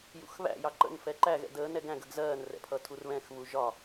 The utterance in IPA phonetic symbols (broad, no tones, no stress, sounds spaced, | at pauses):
j ṵ x β æ̰ j ɑ ǃ ə̰ n f ɛ ǃ æ ɣ ɛ̰ d əː n ɛ ɡ æ̃ ɡ ə ɡ z ɜː n r ɛ̰ pʰ ʌ tʰ u r β ɛ̃ x β u ʒ ɒ